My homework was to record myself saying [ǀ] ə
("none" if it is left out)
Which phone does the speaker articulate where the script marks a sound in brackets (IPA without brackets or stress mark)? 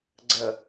ɡ͡ǀ